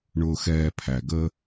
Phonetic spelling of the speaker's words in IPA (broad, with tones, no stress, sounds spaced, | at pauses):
ɳ ʊː˨ x ɛː˨ pʰ æ˨ ɡ ə˦